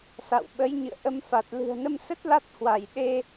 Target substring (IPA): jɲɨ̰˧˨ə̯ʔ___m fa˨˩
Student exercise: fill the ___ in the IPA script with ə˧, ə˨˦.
ə˧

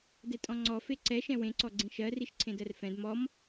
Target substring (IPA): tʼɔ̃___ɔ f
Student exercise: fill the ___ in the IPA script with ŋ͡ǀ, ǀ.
ŋ͡ǀ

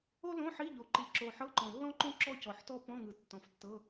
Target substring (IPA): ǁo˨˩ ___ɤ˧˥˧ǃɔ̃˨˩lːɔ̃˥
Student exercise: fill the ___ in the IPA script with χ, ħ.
ħ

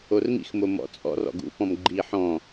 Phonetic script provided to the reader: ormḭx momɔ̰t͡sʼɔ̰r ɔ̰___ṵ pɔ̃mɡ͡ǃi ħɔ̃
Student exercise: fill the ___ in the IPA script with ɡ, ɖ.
ɡ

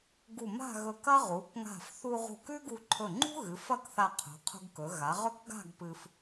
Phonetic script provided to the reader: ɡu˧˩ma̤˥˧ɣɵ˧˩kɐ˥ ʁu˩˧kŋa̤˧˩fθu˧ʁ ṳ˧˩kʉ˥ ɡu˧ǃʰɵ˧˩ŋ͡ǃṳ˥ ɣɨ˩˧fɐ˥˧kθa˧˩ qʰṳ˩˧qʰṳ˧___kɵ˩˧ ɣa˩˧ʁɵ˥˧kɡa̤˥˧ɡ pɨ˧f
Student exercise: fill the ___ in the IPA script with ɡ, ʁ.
ɡ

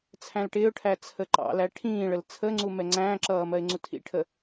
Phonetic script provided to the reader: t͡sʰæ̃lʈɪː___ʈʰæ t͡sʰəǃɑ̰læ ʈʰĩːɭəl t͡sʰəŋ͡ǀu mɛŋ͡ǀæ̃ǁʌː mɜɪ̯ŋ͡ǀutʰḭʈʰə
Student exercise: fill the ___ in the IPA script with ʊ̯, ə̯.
ʊ̯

